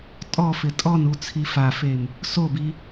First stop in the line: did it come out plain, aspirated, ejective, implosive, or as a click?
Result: ejective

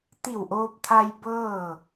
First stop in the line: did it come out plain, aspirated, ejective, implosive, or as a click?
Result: plain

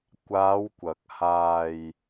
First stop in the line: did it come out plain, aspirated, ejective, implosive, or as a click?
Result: plain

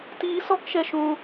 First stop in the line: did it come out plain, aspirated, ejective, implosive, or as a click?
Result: plain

